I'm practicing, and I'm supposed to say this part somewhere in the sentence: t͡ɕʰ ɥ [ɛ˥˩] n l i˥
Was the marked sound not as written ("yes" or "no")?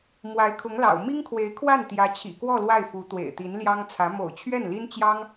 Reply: no